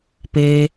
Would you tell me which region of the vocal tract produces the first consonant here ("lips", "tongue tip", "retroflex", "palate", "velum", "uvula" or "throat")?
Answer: lips